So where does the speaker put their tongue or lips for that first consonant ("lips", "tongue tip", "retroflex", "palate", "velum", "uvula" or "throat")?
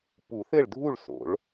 lips